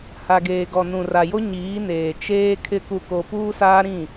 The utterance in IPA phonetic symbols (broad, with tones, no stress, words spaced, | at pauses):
ha˨ɡeː˨ɡɔ˨ nũ˨ra˨jo˦ ɲiː˨˦neː˨ t͡ʃeː˦kʰɪ˦ ku˦ko˦ puː˦saː˦ɾĩ˦˨